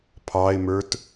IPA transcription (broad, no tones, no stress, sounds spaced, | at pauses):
pʰ ɑ ɪ̯ m ə˞ t